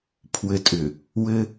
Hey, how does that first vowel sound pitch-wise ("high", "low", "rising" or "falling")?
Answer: low